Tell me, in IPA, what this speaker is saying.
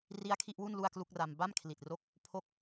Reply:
r i˦˥ a̯ kʰ i˥˩ ʔ w u˥˩ n l u˥˩ a̯ k l u˥˩ k̚ r a˧ m b a˥˩ m kʰ l i˨˩ t̚ r o˦˥ k̚ | pʰ o˦˥ k̚

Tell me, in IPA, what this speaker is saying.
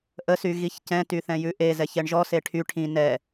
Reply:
ʔ ə s y ɣ i ç c ɛ̃ t y θ ɛ̃ j ʉ ʔ e z ɛ ç ɛ ɳ ʒ ɔ s e ʈʰ y ʈʰ ĩ n ɛ

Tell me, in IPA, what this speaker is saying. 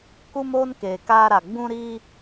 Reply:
k u˦ m oː˦ n k eː˨ k aː˦ ɾ a˨ ɡ͡b ũ˦ ɾ iː˦

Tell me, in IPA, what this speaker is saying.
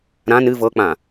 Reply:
ɾ ã n ɨ v ɤ k͡p ã

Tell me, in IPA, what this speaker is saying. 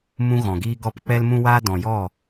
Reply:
m ũ˦ ɣ ɔ̃˨ ɡ iː˦ ɡ ɔ˦ p k͡p ɛ˦ l m ũ˦ w aː˦ d ɔ̃˨ j ɔ˦˨

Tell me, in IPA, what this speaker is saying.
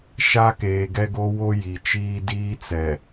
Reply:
ʃ a˦ k eː˨ ɡ ɛ˦ ɡ o˦ w o˦ j i˨ t͡ʃ iː˦ d iː˦ t͡s ɛ˨

